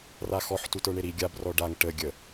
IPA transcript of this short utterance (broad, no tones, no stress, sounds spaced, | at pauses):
r a x ɔ ħ t u t ə˞ ɳ e ɾ i ɡʲ a b r ɔ ɖ a ŋ ʈ ə ɡʲ ə